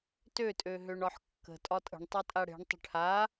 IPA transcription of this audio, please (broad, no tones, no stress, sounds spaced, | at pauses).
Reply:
t ø tʼ ø ɦ ø ɳ ɒ ħ kː ə̤ tʼ ɒ tʼ ə̤ ɳ tˤ ø tʼ a ɽ e̤ ɳ tˤ ə̤ ʈʰ a